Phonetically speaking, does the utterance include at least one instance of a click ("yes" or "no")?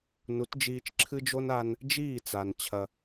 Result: yes